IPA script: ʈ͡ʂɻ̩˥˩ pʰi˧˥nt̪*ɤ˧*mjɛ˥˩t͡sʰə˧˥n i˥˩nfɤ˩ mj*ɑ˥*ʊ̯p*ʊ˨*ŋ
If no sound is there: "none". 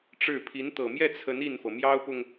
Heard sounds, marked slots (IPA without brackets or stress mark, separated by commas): ɤ˨˩, ɑ˥, ʊ˨